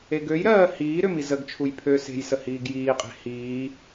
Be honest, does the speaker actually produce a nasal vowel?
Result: no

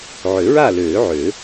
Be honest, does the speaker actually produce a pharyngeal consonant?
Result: yes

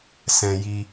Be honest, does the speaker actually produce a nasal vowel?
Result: yes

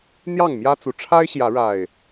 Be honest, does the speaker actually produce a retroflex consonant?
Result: yes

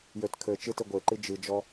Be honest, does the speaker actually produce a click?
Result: yes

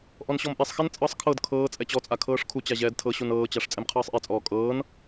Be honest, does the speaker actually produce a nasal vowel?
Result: no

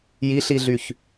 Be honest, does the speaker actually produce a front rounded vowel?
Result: yes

